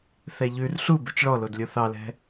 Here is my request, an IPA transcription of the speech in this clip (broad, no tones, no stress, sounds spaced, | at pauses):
θ ɛ ʎ ʉ r ɬ u b ʉ t͡ʃ ɭ ɔ l o d lʲ o θ ɑ l ɛ̤